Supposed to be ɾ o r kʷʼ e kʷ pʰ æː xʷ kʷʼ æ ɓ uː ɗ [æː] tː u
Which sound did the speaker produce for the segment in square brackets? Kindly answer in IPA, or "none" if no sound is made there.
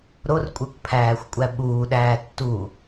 æː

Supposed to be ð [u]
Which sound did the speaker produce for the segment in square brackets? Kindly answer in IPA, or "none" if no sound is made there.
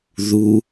u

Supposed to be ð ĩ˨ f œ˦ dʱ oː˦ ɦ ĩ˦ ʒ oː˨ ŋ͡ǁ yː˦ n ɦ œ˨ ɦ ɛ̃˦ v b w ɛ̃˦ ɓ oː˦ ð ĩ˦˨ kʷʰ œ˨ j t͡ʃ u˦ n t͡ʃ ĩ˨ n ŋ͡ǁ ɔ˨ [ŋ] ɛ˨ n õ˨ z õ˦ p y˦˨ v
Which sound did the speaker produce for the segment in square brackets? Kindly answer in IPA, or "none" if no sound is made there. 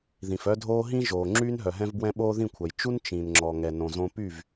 ŋ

